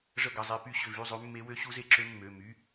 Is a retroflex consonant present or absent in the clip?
present